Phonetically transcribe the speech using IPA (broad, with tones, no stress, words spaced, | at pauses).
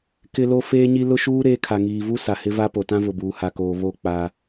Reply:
kɪ˦lo˦ feː˦ɲi˦ lʊ˦ʃuː˦ ɾeː˦ kʰa˨ŋiː˨vu˦ sa˨hɪ˦ va˦po˨ tã˦vʊ˨buː˨ ha˨koː˨ βo˦˨ k͡pa˦